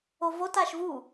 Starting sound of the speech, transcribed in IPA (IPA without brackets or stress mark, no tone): o